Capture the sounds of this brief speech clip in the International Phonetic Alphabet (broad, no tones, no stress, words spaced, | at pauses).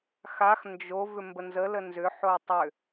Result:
xax nd͡ʒo vʏmbənzə lənzʏ ħotˤʏ